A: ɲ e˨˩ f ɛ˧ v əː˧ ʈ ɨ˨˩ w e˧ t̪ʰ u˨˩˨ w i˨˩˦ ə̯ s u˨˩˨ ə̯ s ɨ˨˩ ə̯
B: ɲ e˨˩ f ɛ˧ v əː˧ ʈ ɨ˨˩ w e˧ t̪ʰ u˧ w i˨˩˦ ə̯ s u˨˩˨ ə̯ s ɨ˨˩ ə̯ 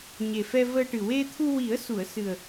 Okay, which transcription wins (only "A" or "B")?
B